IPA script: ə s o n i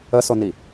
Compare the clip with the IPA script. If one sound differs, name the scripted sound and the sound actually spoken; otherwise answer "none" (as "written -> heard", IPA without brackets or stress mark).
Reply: none